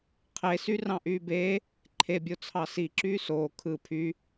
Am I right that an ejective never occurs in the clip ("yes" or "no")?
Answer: yes